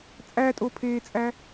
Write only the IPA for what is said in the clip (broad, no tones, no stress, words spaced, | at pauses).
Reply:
t͡sʼætʼopʰeːt͡sʼæ